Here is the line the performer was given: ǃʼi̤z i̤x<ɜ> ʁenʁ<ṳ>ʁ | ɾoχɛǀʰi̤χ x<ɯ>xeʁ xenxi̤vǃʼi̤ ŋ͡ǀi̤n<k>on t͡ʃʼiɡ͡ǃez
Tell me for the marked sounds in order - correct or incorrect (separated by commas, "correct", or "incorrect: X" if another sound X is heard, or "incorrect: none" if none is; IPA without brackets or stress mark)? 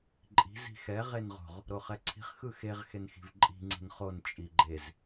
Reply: incorrect: ɛ, incorrect: o̤, correct, incorrect: χ